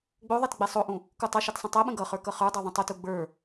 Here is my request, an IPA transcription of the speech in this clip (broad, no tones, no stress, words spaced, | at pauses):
ɡ͡boðˤɛt ɡ͡bɛsˤoʔũ | kutˤʌʃɛt sˤə̃tˤɛɓə̃ ɡʌχə˞ kʌχə˞dˤə˞ ðˤə̃tˤotu ɡ͡bə˞